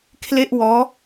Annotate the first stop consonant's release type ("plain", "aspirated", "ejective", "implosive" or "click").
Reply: aspirated